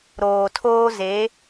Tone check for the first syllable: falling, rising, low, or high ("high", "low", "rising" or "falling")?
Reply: low